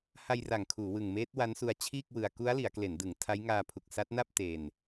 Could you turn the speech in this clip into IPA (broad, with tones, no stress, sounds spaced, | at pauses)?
h a˧ j r a˨˩ ŋ kʰ uː˩˦ w ɯ˨˩ ŋ m eː˦˥ t̚ w a˦˥ n s u˧ a̯ t͡ɕʰ iː˥˩ k̚ w ɯ˧ a̯ k u˦˥ a̯ l i˩˦ a̯ k l e˩˦ n d ɯ˩˦ ŋ tʰ a˦˥ j ŋ aː˧ pʰ u˨˩ k̚ s a˦˥ t̚ n a˥˩ p̚ t e˧ n